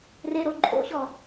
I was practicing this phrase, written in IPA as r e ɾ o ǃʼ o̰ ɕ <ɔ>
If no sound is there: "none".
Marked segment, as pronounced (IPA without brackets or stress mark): ɔ